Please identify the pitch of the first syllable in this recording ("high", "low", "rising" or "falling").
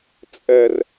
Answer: low